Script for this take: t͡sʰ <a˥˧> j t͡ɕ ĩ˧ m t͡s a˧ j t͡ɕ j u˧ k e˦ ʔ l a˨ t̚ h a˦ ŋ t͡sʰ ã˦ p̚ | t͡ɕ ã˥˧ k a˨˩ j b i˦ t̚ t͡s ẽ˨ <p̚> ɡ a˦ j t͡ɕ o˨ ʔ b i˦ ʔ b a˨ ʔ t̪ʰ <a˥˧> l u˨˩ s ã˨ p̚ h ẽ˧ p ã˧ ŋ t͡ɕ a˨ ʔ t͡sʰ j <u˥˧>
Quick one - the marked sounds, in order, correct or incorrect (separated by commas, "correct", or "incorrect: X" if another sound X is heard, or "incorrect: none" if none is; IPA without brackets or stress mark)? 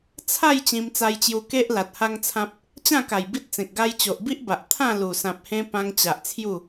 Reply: correct, incorrect: k̚, incorrect: ã˥˧, correct